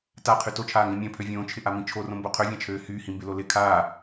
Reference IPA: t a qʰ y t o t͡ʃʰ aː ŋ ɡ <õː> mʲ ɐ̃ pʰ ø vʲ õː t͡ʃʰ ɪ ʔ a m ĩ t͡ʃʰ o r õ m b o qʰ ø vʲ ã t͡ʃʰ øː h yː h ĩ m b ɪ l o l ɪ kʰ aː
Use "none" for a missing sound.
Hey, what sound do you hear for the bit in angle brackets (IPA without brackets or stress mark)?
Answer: õ